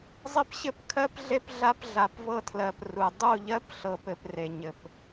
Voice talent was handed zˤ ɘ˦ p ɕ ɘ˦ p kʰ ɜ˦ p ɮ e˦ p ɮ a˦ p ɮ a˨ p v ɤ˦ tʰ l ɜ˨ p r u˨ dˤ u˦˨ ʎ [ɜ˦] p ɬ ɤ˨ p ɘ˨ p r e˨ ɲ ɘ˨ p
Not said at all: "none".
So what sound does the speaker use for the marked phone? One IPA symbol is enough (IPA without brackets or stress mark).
ɜ˦